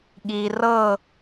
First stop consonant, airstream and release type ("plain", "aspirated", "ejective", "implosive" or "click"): implosive